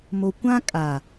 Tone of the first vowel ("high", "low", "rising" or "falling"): low